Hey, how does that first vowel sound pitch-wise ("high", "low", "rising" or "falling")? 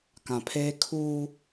low